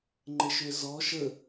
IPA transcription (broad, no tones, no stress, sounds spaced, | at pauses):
ŋ͡ǃ ɘ ʃ ø z ɔ ʃ ə